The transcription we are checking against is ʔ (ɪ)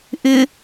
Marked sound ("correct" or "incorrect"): correct